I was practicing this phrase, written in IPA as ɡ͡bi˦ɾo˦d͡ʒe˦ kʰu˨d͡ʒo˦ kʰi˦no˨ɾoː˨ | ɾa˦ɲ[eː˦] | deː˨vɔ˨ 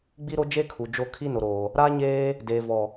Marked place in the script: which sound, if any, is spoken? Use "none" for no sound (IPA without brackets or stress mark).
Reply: eː˦